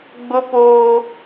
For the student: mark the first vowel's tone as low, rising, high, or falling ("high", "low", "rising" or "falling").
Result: high